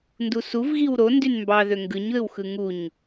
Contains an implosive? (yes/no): no